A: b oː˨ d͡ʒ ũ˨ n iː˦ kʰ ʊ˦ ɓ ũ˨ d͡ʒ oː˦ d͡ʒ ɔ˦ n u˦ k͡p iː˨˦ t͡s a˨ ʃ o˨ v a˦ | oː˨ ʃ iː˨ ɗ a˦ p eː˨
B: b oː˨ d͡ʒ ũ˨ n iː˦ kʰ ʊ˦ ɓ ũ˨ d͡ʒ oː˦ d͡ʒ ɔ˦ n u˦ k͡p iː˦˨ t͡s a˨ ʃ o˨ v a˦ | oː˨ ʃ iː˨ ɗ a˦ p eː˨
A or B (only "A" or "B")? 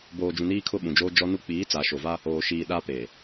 A